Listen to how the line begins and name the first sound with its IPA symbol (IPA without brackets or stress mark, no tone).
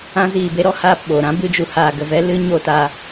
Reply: ã